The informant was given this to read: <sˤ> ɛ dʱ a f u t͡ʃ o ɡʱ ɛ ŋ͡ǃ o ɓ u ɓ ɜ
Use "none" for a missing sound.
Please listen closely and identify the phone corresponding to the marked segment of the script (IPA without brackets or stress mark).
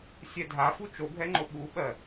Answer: sʲ